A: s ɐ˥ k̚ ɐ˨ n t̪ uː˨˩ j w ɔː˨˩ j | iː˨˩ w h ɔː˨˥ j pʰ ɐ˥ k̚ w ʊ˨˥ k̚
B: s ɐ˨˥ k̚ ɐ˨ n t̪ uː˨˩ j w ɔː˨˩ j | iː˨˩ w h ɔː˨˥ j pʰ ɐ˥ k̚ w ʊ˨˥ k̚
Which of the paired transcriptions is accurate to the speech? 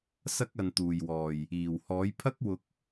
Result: A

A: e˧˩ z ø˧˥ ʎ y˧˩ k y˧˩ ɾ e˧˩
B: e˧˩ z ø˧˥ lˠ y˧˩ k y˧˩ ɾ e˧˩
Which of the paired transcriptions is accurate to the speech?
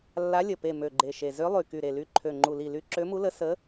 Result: B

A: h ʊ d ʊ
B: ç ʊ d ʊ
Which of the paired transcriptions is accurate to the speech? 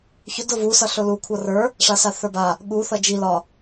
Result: B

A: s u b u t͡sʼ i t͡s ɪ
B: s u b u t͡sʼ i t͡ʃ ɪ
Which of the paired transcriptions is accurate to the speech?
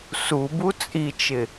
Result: B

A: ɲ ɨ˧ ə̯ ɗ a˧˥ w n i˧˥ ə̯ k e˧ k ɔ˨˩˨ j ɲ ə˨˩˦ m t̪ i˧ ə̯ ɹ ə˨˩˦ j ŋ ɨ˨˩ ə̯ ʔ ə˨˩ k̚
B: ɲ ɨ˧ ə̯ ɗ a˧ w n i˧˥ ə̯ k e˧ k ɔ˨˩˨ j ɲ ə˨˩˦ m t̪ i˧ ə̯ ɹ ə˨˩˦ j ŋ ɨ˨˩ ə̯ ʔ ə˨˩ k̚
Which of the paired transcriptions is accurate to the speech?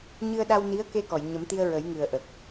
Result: B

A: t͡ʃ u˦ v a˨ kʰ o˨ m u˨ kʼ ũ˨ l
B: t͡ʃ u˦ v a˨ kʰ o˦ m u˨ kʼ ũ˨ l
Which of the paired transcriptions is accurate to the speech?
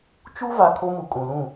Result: B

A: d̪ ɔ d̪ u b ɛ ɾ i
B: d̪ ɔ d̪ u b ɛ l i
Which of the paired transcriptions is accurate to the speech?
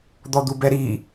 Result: A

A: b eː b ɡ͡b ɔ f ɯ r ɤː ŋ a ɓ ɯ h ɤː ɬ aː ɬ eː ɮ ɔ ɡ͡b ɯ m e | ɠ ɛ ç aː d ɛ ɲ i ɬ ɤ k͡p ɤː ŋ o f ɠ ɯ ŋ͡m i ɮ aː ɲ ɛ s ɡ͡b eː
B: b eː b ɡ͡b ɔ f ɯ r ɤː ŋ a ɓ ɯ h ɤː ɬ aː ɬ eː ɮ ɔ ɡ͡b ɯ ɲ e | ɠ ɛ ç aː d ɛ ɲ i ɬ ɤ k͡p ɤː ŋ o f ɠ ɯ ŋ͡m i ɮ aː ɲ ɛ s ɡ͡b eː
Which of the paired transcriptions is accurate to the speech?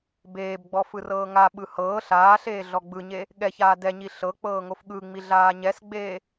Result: B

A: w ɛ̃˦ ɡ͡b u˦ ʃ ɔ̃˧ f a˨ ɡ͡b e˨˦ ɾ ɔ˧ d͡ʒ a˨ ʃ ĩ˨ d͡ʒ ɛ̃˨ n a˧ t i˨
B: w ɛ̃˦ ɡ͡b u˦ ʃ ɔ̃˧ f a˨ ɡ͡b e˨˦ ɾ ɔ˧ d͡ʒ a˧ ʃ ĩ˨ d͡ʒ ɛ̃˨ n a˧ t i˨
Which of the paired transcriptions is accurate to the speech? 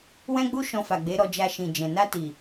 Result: B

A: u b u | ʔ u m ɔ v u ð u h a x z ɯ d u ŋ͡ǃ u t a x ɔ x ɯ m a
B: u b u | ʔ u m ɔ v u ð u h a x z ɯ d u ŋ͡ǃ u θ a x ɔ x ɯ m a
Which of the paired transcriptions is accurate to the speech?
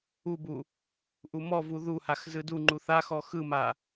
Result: B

